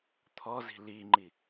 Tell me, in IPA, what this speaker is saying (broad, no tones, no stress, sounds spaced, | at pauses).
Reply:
t̪ʰ ɔ z i̤ l i ŋ͡ǃ i